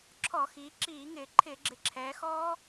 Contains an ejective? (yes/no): no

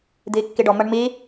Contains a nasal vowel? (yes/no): no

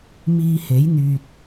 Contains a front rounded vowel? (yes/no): yes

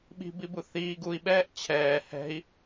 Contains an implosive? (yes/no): yes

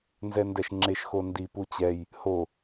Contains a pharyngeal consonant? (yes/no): no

